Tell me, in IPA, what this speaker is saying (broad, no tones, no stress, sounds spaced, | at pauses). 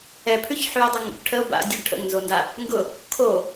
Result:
ɛ pʰ ʉ ç ħ y o̯ dˤ a ŋ ṵ k ʈʰ ə o̯ b a̰ dʲ ʉ ɖ ʈʰ ə̰ ŋ n z o n d a | ŋ ɡ ʊ | kʰ o